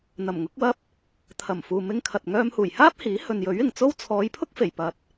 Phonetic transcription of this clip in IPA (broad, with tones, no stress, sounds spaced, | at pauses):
n̪ ɐ˨˩ m ŋ ʊ˨˥ k̚ w ɐ˥ p̚ | t̪ʰ ɐ˨˩ m f uː˨ m ɪ˧ ŋ kʰ ɐ˨ t̚ ŋ œː˧ m h uː˨˩ j h aː˥ p̚ h iː˨˥ h ɵ˨ n j ɵ˨˥ ɥ ɪ˨˩ ŋ t͡s o˥ w t͡sʰ ɔː˨˧ j pʰ ʊ˥ k̚ f e˨˩ j p ɐ˨ t̚